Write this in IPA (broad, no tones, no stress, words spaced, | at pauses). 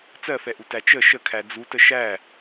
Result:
t͡sɜfɛʔu tæt͡ʃə ʃəkʰæ d͡zutə ʃæ